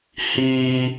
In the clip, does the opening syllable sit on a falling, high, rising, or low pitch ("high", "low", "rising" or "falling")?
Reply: high